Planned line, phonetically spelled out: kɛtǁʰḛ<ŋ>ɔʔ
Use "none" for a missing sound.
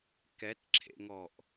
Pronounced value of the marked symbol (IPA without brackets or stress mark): ŋ